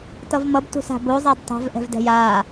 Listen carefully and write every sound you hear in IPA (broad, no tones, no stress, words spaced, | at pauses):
tʌvmʌb tṳsa̤bo zˤadtˤa̤v ʔɛ̤vdɛ̤jaː